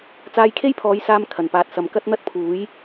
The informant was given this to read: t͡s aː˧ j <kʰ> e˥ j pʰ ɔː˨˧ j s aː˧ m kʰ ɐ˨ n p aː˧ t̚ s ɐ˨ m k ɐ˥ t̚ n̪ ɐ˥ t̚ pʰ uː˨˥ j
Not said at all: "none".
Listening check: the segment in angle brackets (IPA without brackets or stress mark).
kʰ